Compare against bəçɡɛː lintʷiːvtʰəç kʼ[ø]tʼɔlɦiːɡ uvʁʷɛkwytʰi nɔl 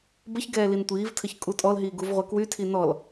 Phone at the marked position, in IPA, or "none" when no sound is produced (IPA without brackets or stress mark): u